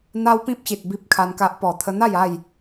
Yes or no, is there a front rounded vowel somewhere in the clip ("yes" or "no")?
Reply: no